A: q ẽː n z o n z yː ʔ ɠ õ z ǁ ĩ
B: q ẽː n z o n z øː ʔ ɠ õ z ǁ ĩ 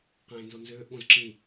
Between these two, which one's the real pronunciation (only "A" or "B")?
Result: B